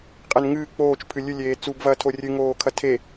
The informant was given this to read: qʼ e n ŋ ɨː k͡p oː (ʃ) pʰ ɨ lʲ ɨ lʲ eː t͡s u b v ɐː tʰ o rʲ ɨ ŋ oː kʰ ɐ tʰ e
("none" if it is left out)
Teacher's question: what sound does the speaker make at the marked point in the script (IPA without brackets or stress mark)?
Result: t͡ʃ